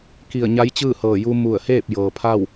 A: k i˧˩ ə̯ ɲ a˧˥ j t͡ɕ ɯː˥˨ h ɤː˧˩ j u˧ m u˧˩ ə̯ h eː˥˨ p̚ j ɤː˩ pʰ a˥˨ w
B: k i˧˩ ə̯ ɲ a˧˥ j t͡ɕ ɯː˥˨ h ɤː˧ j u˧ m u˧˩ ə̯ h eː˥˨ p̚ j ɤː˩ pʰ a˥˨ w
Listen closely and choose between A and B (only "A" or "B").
A